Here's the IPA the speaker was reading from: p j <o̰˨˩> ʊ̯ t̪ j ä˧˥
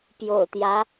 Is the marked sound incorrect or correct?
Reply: correct